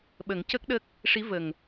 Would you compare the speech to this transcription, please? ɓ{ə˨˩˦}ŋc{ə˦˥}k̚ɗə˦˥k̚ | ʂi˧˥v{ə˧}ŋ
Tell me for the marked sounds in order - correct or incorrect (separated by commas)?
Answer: correct, correct, incorrect